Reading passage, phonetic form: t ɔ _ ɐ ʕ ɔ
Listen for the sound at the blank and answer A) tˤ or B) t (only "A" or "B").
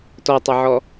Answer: A